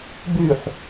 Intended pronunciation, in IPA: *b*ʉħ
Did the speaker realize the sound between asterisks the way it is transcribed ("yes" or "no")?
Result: yes